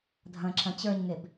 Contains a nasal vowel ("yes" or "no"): yes